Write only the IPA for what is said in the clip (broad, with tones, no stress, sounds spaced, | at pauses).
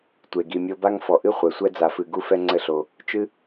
tʷ e˨ ɡ i˨ mʲ o˧ b a˦ ŋ f ɔ˨ ʔ ɨ˦ χʷ ɛ˨ sʷ ɛ˦ d͡z a˧ f ɨ˧ ɡ u˦ f ɛ˦ ŋ͡ǀ ɘ˦ ɬ o˧ | t͡ʃ ɨ˦